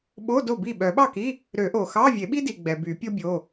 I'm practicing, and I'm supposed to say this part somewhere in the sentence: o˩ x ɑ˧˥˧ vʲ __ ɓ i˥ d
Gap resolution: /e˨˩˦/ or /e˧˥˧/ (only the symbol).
e˨˩˦